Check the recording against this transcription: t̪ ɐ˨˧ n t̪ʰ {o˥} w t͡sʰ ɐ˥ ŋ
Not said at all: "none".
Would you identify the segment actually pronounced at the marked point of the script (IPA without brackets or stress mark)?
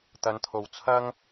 o˨